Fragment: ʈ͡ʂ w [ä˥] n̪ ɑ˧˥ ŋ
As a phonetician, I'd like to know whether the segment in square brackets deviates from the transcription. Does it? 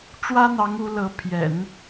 no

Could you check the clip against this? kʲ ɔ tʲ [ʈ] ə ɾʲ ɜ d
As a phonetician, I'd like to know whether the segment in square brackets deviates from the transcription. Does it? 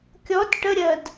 no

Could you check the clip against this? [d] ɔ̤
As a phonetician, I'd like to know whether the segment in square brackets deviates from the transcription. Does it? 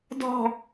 no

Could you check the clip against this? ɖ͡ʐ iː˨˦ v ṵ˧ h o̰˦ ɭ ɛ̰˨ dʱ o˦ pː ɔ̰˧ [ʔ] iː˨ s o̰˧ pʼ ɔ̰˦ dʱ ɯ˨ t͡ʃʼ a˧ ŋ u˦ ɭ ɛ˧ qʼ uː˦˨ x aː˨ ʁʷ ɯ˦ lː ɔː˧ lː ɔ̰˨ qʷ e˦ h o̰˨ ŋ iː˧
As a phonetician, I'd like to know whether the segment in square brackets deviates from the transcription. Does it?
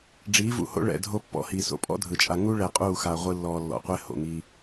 yes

